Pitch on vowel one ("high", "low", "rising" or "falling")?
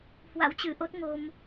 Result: rising